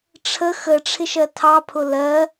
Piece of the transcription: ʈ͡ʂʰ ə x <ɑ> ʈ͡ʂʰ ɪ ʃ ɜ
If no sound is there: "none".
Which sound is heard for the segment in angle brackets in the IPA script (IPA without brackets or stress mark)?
ə